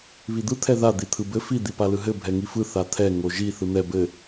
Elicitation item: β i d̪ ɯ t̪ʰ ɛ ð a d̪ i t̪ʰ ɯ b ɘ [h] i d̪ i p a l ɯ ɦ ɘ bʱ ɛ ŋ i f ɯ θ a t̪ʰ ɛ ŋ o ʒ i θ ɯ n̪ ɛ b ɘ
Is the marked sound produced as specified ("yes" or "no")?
no